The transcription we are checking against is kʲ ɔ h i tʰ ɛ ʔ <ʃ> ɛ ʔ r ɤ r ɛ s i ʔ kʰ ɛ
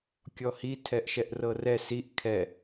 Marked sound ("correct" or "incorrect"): correct